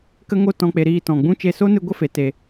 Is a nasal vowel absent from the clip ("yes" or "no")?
no